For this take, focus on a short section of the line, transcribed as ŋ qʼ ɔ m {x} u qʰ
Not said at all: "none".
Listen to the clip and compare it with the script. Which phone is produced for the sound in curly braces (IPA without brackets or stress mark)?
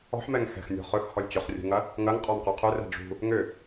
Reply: q